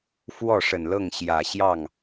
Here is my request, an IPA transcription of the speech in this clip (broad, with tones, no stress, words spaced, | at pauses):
fwɔ˥˩ʂə˨˩nlɤ˥˩ŋ ɕjä˨˩ ɕjɑ˥˩ŋ